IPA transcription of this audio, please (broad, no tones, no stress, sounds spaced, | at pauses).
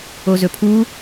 o z ɵ pʰ u